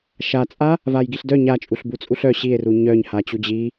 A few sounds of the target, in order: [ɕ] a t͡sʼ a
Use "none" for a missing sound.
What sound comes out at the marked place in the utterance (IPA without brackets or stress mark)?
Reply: ʃ